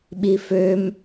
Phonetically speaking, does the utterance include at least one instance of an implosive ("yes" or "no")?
yes